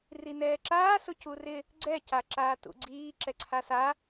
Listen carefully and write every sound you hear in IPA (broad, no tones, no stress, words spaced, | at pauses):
rinɛːǁaː sʊcurɪ | ɡ͡ǀɛ caǁaːtṵɡ͡ǀiː ǁɛǀʰasa